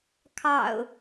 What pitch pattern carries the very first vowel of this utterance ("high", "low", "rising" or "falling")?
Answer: low